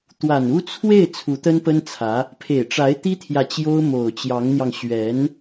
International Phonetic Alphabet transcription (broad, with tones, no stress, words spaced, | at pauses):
t̪wa˨˩nu˥ t͡sʰwe˥˩ɪ̯ t͡sʰu˧˥t̪ə˥npə˥nt͡sʰä˧˥ | pʰe˨˩ɪ̯ʈ͡ʂa˧˥ɪ̯ t̪i˥t̪ʰjä˨ t͡ɕjo˥ʊ̯mo˨˩ʊ̯t͡ɕjɑ˧˥ŋn̪jɑ˧ŋ ɕɥɛ˧˥n